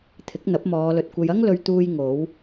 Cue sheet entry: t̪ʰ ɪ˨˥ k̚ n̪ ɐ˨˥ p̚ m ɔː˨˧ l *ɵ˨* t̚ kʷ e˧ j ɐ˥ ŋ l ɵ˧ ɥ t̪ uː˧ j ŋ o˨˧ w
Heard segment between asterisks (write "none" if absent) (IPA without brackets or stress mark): ɵ˨